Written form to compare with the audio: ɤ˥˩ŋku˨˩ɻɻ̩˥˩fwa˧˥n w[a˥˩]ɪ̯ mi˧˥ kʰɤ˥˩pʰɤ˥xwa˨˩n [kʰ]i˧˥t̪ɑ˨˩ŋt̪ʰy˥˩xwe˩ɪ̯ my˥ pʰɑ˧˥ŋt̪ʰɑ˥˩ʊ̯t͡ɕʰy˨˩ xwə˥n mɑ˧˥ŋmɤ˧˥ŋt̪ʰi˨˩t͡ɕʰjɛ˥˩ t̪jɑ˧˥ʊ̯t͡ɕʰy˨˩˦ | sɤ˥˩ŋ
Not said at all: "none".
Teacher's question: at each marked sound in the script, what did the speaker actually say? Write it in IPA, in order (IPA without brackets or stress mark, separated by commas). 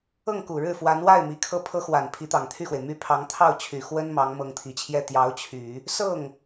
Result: a˥˩, pʰ